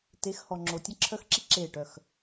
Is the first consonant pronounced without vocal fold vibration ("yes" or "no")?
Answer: yes